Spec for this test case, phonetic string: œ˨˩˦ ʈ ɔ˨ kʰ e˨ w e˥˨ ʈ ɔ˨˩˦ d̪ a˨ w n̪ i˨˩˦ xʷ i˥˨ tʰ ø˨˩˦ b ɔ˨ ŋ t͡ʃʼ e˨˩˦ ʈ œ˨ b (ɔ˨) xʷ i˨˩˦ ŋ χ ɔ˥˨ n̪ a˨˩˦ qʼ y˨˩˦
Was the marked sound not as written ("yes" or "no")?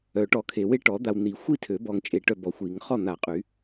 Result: no